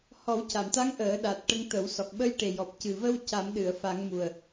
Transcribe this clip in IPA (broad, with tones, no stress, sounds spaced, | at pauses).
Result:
h ɔ˨˩˦ w c a˨˩˨ m t̪ a˧˥ ŋ ʔ əː˨˩˦ ɗ a˨˩ t̚ ʈ ə˧ ŋ t̪ ə˨˩˦ w s ɔ˨˩ k̚ ɓ ə˧ j ʈ e˨˩ j ɔ˨˩ p̚ c ɨ˨˩ v ə˧ w c a˨˩˦ m ɗ ɨ˨˩˨ ə̯ f a˨˩˦ ŋ m u˨˩ ə̯